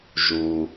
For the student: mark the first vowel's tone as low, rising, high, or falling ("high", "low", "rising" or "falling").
low